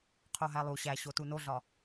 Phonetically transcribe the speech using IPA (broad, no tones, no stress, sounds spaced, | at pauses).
qʰ o ɦ æ lˠ u ɕ æ ɕ o t u n o ɮ ɒ